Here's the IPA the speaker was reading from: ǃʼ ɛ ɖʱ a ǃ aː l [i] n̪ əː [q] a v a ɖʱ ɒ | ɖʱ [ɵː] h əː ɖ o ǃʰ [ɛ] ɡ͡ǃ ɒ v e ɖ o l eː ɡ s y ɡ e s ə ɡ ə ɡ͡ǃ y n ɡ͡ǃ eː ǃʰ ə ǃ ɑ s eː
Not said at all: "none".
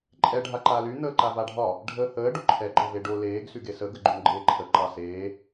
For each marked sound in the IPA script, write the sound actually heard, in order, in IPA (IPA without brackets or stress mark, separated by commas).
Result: y, ǃ, əː, ɛ